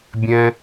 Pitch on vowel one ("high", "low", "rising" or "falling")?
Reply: high